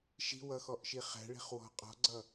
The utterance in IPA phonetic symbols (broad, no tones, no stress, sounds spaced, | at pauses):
ʃ i̤ w ʌ x ɔ ʔ ʃ i χ æ̤ ɭ i̤ χ w ɔ̤ qʼ ɔ̤ ɡ͡ǀ ʌ